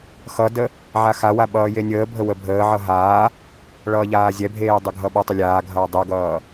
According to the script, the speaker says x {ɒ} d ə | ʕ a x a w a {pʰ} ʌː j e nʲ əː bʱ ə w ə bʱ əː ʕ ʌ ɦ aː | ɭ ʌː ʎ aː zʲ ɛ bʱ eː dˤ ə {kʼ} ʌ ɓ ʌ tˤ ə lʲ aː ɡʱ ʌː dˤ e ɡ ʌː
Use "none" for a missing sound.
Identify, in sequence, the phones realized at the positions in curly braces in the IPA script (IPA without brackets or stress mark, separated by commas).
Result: ʌ, ɓ, ɡʱ